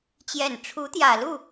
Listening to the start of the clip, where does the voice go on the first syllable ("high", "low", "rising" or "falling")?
low